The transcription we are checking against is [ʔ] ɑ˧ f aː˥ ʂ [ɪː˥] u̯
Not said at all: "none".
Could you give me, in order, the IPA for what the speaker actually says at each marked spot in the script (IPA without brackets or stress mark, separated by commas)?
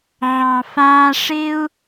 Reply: ʕ, ɪː˥